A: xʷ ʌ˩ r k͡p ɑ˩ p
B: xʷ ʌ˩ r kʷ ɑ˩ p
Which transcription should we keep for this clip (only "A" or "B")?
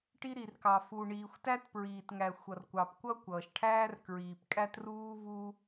B